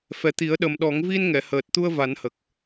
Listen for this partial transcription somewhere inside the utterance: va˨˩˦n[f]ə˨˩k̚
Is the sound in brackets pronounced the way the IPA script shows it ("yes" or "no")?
no